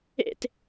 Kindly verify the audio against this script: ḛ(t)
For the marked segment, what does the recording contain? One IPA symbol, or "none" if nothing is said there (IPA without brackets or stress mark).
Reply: t